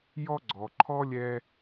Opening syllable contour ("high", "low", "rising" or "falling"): high